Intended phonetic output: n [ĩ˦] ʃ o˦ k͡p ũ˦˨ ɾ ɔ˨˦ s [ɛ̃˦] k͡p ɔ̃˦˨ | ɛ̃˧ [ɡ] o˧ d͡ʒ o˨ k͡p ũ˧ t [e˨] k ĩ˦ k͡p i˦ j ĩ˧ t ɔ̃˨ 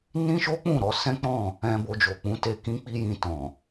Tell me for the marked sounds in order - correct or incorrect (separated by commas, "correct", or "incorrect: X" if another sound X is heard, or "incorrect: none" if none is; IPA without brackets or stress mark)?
correct, correct, incorrect: b, incorrect: e˧